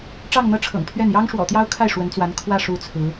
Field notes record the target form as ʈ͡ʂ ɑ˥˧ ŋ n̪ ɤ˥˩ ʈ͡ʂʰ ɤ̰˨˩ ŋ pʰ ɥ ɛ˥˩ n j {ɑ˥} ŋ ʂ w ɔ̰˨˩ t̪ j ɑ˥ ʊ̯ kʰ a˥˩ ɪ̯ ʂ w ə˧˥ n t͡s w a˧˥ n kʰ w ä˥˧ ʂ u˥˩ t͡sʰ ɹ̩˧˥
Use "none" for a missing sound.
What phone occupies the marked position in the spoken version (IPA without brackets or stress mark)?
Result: ɑ˥